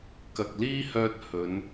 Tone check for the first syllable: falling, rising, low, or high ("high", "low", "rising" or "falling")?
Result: low